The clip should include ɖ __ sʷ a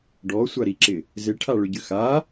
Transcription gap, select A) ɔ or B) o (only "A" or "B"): A